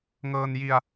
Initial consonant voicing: voiced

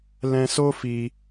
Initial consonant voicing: voiced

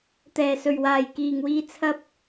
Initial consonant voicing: voiceless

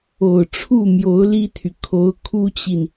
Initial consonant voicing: voiceless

